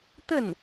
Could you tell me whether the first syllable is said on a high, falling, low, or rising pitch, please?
falling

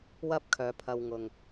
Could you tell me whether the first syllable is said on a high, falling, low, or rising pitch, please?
high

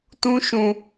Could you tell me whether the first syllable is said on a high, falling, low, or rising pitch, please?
high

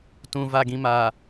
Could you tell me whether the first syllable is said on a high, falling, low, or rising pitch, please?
low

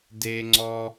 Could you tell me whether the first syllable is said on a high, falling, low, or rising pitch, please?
high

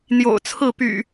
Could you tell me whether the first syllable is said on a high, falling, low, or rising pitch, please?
low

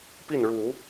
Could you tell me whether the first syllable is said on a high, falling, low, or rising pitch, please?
falling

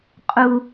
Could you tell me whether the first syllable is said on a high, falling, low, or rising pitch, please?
high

